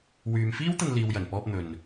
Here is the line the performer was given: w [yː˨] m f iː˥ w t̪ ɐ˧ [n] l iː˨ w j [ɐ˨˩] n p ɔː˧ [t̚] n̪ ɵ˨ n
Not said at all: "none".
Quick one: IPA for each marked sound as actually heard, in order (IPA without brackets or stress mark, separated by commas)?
yː˨, n, ɐ˨˩, p̚